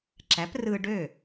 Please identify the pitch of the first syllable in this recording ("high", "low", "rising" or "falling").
rising